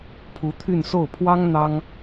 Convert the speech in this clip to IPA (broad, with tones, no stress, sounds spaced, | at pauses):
pʰ u˧˥ t̪ʰ y˥˧ n s o˥˩ ʊ̯ pʰ w ɑ˥ ŋ n̪ ɑ˥ ŋ